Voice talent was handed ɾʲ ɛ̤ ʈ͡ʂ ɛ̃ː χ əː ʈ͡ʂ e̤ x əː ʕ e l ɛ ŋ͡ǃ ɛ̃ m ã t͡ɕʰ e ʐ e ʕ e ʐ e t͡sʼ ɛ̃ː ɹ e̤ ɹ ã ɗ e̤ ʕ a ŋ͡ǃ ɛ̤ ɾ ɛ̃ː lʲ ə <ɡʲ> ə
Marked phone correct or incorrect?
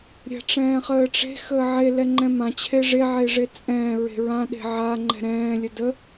incorrect